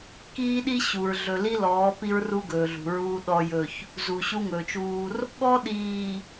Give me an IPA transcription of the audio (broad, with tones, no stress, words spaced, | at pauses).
kiː˦ɗi˦ɕu˨ɹ ɮɵ˨li˦lɔː˨˦ pi˦ɹru˦ɡɵː˨ɮṳ˨ ɹuː˦ɗɔ˦jɵ˦˨ç | zu˨ɕu˦ŋɵː˨t͡ʃuː˦r | ɠɔ˦ɗiː˨